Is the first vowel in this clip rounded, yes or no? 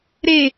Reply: no